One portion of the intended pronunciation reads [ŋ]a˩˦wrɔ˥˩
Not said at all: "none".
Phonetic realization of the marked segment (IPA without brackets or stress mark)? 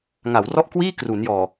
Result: ŋ